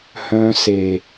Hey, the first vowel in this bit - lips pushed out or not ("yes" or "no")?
yes